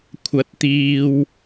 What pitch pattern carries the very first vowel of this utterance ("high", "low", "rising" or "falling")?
rising